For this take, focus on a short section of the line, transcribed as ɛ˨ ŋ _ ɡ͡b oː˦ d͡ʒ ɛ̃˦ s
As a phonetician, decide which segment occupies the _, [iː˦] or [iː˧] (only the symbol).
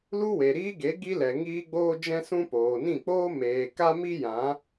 iː˦